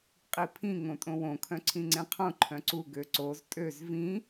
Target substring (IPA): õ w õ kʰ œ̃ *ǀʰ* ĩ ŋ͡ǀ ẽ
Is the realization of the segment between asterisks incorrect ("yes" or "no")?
no